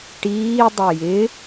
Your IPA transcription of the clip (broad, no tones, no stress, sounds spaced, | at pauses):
ʈ iː dˤ ɛ j ɪ